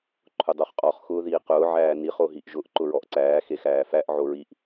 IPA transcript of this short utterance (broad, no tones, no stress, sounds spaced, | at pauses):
ǃʰ ʊ dˤ o χ qʼ ɔ χ x ʊː ð iː q ʊː ʕ æː n i χ o ɦ i ʔ ʒ ʊ ʔ ǃ ʊ ɹ ɔ ʔ ǀ æː x e x æː f æ ʔ ʕ o ɹ i ʔ